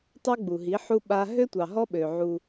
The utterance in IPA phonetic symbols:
tˤ ø˦ ɡ͡b u˨ ɦ i˨˦ ħ u˦ ɓ a˦ ɦ ø˦ tʷ ɑ˨ ɦ ɔ˦ ɓ ø˨ ʕ u˦

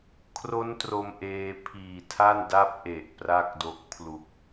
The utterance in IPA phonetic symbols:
kʰ r o˦˥ n t r o˧ m ʔ eː˧ pʰ iː˨˩ tʰ a˥˩ n d a˦˥ p̚ ʔ e˨˩ ʔ p r a˥˩ k̚ d o˦˥ k̚ pʰ l u˨˩ k̚

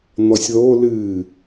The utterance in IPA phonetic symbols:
n̪ ɔ sʲ ð o l ɨ

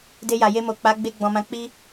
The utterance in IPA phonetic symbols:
d e˧ j a˨ j e˧ m o˨ k͡p a˨˦ ɡ͡b e˧ ɡ͡b ɔ̃˨ m ã˧ k͡p i˦

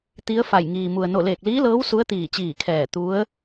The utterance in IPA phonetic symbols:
t̪ i˧˥ ə̯ f a˧˩ j ŋ iː˩ m u˩ ə̯ n o˧˩ l eː˧˩ k̚ l iː˧˥ l ɤː˧˥ w s u˧˥ ə̯ t̪ iː˧˩ t͡ɕ iː˧˩ kʰ ɛː˧˩ t̪ u˧˥ ə̯

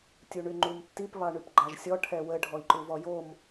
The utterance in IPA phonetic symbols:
tʲ u ɳ y ŋ͡ǃ u m tː i p β ɑ ɳ y p ɡ͡ǃ ɑ ʒ sʲ ɔ ʈʰ ɛ w ə ɖʱ ɔ i̯ ǃ u v ɔ j o m

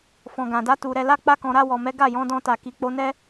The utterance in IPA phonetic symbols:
f ɔ̃˨ ɡ ã˨ d a˨˦ t u˧ ɾ ɛ˧ l a˦ k͡p a˦ k ɔ̃˧ ɾ a˧ w ɔ˨ m ɛ˨˦ ɡ a˦˨ j ɔ̃˨˦ d ɔ̃˧ t a˨ k i˨ k͡p o˧ n ɛ˦

